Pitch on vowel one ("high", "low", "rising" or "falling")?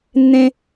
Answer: high